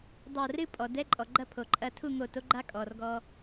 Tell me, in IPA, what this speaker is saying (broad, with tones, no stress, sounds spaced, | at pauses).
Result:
dˤ a˧˩ r ɨ˥˧ pʼ ɔ˩ d ɛ˧˥˧ ǃʼ ɔ˩ ɡ͡ǃ ɐ˥˧ pʰ o˩ ǃʼ ɐ˧ tʰ u˥˧ ŋ o˧˩ t o˧˥ ɡ͡ǃ a˧˥˧ kʼ ɔː˩ r ɡ ɔː˧